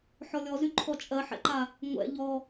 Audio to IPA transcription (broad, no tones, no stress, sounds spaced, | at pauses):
ħ ɔ lʲ ɔ z y ǃʰ ɔ t͡ʃʼ ɜ ħ ɛ̰ ǃ a | ŋʷ ɛ̰ ʎ ɔ